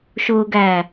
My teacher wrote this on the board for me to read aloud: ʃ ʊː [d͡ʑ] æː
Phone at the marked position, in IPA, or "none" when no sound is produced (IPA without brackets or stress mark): ɡ